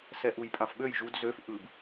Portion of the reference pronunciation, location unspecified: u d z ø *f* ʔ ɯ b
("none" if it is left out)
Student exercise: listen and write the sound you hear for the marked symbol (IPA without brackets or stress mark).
f